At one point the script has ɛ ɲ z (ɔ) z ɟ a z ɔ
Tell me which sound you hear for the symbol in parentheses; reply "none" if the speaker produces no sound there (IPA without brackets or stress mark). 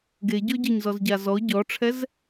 ɔ